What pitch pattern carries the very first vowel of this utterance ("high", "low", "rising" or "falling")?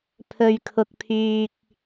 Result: low